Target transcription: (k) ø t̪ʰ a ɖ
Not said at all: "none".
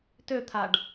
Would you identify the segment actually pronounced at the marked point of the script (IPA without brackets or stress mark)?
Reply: t